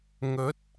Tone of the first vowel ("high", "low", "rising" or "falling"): rising